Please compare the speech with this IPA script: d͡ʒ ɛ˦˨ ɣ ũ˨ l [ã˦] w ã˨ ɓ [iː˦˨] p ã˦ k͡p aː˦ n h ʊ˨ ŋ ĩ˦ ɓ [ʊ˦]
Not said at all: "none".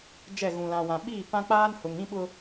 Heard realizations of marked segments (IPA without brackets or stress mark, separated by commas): ã˨, iː˦˨, ʊ˦